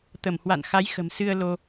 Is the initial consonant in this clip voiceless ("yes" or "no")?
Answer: yes